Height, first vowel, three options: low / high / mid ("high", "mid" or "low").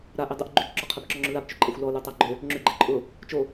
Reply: low